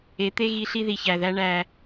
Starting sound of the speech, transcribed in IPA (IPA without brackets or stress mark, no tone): e